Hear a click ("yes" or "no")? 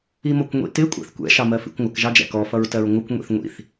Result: no